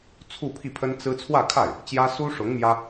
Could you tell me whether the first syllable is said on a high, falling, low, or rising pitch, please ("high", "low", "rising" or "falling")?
falling